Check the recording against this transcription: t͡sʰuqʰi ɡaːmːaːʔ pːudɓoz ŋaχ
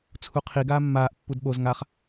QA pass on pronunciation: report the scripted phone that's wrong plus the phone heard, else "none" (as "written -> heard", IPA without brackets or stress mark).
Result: none